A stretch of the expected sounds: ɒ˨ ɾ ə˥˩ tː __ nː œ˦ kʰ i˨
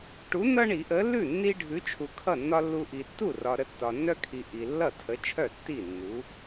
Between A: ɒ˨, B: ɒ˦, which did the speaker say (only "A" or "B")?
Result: A